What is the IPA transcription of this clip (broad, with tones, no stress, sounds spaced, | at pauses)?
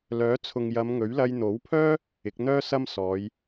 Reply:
l œː˨˥ t͡sʰ ʊ˨ ŋ j ɐ˨˧ m ŋ ɵ˨˥ ɥ l ɐ˧ j n̪ o˨˥ w pʰ œː˥ | ɪ˨˥ k̚ n̪ œː˥ s ɐ˥ m s ɔː˨˧ j